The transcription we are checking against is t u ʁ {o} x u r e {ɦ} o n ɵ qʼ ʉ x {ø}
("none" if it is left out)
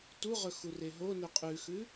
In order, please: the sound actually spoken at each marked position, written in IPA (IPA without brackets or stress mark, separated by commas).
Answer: ɵ, ɦ, ʉ